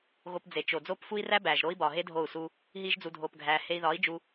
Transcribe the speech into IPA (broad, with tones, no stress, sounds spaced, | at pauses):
ɣ o˧ p d͡z e˨ t͡ʃ o˨ d͡z oː˦ p f u˦ i̯ r æ˦ b æː˨ ʒ ɾ oː˦ i̯ b ɒː˨ ɦ e˦ dʱ oː˦˨ u̯ s u˦ | ɦ iː˦ ʒ d͡z u˧ dʱ oː˧ p ɡʱ æː˧ h e˧ i̯ ð ɒː˨˦ i̯ d͡ʒ u˧